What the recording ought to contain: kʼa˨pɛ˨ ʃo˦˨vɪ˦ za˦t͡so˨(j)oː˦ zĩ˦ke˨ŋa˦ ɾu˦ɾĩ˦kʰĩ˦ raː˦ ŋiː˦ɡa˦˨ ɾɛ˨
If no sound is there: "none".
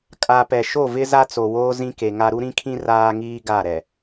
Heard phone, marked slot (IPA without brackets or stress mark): w